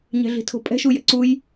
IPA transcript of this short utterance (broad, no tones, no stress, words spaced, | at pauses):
ɲɛ̤ɮi̤tʰo̤pʼɛ̤ ʃujɛ̰ǀuj